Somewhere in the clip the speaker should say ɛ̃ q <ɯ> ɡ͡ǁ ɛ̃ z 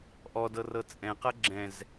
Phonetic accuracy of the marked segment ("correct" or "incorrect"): incorrect